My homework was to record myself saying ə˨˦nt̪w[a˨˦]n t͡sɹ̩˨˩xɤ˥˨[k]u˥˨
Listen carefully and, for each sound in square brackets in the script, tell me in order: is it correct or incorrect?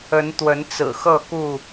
incorrect, correct

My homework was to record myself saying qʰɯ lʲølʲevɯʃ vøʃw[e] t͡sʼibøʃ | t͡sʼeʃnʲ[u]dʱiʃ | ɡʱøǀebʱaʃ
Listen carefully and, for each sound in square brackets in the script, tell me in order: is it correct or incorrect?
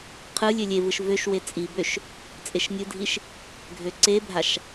correct, incorrect

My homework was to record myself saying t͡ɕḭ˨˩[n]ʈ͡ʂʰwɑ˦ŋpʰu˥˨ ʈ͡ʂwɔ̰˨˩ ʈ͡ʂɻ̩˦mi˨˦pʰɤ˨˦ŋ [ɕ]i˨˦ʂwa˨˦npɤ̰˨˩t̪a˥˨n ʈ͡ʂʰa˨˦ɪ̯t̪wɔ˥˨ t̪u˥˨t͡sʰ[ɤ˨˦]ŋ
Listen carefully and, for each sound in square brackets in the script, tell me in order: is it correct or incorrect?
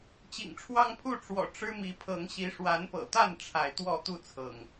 incorrect, correct, incorrect

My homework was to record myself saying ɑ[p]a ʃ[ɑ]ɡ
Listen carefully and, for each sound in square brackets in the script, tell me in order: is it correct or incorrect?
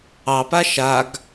correct, incorrect

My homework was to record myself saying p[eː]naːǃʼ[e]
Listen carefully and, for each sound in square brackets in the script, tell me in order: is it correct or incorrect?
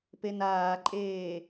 incorrect, incorrect

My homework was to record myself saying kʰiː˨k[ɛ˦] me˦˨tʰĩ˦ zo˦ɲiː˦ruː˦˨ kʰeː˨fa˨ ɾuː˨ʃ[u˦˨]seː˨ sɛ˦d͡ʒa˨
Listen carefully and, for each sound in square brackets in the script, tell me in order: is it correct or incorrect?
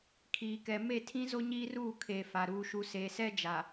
incorrect, incorrect

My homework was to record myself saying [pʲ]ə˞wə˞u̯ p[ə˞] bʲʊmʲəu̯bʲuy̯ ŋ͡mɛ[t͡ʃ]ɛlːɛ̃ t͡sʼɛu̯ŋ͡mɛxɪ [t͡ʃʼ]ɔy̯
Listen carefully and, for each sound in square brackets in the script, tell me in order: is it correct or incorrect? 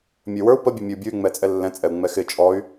incorrect, incorrect, incorrect, correct

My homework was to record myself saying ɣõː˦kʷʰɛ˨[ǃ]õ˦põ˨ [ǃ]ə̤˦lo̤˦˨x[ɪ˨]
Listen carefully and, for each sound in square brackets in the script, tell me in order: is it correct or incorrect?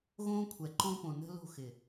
correct, incorrect, correct

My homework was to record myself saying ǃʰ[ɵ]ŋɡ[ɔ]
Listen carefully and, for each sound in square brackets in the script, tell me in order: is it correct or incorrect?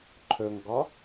correct, correct

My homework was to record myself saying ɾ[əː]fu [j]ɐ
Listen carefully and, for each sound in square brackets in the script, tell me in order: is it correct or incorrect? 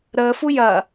correct, correct

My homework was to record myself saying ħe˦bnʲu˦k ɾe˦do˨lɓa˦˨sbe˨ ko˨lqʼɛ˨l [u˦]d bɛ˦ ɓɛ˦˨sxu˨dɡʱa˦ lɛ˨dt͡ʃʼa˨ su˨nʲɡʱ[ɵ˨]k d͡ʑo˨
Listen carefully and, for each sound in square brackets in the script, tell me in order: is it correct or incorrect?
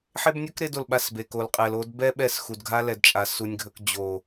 incorrect, correct

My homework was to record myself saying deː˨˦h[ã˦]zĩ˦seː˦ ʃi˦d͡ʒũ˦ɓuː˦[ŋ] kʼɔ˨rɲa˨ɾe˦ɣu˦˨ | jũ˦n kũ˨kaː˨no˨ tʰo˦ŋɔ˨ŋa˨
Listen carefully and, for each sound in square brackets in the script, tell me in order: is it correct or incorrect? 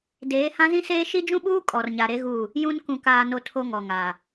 correct, incorrect

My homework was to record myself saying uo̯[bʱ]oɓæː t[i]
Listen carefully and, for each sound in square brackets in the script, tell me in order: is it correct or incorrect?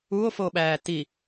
incorrect, correct

